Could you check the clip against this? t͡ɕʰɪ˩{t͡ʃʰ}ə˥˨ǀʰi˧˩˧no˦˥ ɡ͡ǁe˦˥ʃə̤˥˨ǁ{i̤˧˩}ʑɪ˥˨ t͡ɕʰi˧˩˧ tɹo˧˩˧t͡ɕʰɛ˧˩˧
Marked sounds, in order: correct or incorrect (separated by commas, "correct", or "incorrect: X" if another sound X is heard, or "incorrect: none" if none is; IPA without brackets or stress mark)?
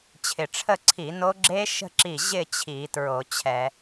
incorrect: ʈ͡ʂʰ, incorrect: i˧˩